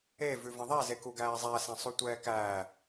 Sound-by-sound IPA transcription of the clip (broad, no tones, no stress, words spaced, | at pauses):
e vʉvə̃ðˤɛ zekuɡæːzˤæ sãsˤʉtʷɛːkæː